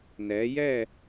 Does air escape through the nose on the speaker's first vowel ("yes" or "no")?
no